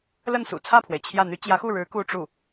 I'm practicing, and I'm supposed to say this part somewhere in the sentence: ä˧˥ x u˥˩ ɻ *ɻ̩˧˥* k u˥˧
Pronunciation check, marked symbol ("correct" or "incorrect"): correct